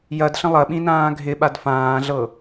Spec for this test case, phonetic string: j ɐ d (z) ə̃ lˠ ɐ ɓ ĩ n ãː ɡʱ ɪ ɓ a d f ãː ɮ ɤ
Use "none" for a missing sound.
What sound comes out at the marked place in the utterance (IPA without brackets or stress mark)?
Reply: ɬ